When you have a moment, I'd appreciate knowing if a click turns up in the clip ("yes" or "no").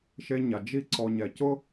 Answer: yes